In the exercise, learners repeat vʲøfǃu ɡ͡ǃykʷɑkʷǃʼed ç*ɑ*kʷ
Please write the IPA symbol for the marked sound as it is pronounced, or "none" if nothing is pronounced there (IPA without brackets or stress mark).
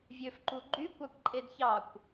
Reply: ɑ